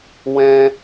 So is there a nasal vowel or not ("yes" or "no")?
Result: yes